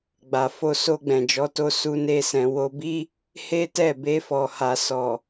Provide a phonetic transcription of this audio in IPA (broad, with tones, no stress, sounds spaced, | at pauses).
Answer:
ɡ͡b a˨ f o˧ s o˧ ɡ͡b ɛ̃˨ d͡ʒ ɔ˨˦ t o˧ s u˦ n e˦ s ɛ̃˧ w o˧ b i˦ | h e˦ t ɛ˦˨ b e˧ f ɔ˨ h a˨ s ɔ˨